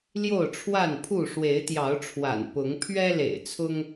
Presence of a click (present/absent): absent